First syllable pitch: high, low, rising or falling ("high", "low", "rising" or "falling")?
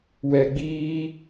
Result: low